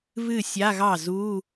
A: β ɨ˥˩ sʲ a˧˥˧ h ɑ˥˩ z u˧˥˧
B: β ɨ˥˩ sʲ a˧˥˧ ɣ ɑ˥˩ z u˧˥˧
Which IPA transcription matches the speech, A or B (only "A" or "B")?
B